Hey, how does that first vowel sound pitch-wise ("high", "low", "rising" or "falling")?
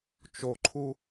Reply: low